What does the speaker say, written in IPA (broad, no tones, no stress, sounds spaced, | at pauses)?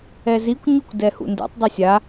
ɛ z i kʷ ɲ u kʷ d ɛ h ṵ n d ɛ̰ tˤ dˤ u sʲ a